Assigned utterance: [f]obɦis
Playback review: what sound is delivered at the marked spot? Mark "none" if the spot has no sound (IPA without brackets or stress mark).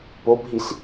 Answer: p